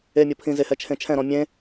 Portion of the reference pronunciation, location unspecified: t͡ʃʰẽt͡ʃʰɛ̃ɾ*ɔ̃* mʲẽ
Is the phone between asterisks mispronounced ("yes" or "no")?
no